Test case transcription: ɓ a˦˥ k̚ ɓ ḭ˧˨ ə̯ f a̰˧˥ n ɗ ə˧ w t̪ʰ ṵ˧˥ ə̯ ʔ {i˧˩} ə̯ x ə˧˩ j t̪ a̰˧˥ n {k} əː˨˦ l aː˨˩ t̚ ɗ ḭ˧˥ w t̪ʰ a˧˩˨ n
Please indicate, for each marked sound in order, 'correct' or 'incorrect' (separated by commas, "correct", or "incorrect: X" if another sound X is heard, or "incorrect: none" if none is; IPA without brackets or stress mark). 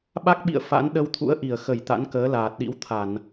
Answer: correct, correct